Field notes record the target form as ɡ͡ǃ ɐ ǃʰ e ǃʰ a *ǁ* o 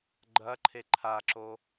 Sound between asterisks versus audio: correct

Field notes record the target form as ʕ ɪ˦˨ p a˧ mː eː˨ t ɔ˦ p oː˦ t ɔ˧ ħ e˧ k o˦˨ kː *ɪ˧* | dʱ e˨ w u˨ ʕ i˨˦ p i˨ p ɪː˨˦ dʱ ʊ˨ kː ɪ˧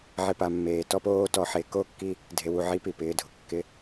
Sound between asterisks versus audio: incorrect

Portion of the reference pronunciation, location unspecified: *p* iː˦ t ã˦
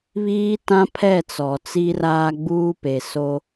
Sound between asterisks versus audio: incorrect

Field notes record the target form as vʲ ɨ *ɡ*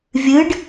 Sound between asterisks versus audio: incorrect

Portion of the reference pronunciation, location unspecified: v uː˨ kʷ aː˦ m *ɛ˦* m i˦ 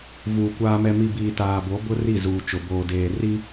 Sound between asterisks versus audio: correct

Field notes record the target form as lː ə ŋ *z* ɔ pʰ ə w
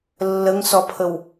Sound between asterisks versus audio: incorrect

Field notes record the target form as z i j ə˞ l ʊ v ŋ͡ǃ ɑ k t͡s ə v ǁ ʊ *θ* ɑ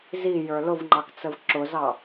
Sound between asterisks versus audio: incorrect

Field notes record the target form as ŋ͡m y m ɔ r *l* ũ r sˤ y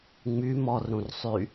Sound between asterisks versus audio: incorrect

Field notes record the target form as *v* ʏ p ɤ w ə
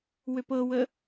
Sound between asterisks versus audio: incorrect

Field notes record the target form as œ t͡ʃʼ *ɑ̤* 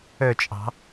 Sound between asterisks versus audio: correct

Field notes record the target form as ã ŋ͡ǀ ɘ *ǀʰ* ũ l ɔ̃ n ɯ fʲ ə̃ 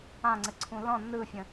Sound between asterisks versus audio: correct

